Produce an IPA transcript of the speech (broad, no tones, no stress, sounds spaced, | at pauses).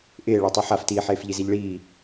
ʔ ɪː ɭ a tˤ i ħ a f t iː ħ eː f ʎ i z i ʎ ɭ iː